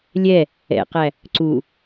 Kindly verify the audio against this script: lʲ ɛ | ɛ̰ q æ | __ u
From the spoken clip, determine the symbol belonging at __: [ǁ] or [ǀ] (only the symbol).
ǀ